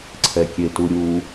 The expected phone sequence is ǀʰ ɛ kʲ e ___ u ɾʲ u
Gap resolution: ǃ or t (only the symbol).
t